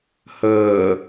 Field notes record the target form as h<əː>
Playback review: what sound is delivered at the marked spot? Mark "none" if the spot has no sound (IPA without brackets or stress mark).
əː